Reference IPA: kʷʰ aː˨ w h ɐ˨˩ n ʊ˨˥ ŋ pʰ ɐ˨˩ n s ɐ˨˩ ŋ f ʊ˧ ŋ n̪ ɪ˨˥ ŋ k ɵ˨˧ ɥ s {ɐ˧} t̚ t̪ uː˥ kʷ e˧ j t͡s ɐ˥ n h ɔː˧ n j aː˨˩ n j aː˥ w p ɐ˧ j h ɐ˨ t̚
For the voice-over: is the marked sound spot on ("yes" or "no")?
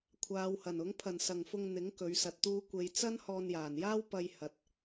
yes